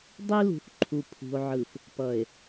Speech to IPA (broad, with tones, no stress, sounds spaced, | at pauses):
dˤ i˦ l ṳ˨ θ ǃʰ u˨ pʰ ṳ˨ o̯ ʕ ɯ˨ f | p ʌ˨ e̯